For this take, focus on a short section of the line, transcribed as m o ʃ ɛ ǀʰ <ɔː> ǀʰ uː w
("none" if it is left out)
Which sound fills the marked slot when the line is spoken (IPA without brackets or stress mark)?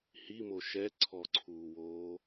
ɔ